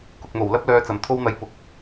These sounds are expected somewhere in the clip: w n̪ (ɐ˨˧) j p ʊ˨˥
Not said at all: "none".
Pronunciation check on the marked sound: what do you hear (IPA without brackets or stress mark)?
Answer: ɐ˨˧